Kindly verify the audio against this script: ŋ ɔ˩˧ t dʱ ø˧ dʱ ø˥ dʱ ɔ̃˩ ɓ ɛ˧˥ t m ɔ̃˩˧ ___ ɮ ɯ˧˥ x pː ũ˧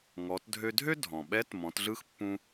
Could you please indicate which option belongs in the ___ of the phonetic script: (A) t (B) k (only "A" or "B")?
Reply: A